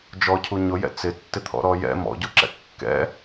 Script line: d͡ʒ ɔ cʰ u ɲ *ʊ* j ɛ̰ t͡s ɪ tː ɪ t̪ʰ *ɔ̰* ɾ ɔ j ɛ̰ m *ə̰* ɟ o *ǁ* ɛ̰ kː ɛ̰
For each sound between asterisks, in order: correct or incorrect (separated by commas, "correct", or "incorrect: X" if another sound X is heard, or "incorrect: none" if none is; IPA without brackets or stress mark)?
correct, correct, incorrect: ɔ̰, correct